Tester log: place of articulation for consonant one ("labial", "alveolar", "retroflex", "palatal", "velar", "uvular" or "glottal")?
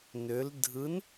alveolar